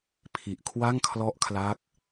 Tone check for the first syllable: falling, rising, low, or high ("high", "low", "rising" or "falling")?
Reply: low